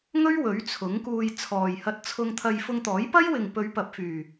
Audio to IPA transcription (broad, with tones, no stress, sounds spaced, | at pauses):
ŋ ɵ˥ ɥ w ɵ˨˥ ɥ t͡sʰ ʊ˨˥ ŋ k uː˧ j t͡sʰ ɔː˨ j h ɐ˧ t̚ t͡sʰ ʊ˧ ŋ t̪ʰ ɐ˧ j f ʊ˧ ŋ t̪ ɔː˨˥ j p ɐ˥ j w ɪ˨ ŋ p ɵ˨˧ ɥ p ɐ˨ p̚ f yː˨˩